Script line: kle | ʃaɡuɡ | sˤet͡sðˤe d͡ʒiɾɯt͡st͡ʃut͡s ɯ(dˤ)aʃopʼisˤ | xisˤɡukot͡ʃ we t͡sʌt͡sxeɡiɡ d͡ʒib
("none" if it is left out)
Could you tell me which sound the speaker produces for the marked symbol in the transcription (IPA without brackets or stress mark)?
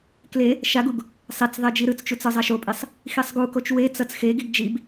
zˤ